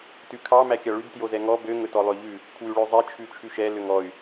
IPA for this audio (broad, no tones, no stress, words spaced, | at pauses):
tʉkʰɑ mækʲɑɭʉb tjozɛŋɔ bø ŋɵtɔlˠøʎʉ | kʰwʉɭøzˤe t͡ʃʰʉt͡ʃʰʉʃɛ løŋɔy̯